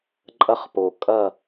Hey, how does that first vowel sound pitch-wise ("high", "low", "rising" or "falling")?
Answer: high